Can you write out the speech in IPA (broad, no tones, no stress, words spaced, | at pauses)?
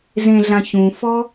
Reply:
zẽɮã çũfɔ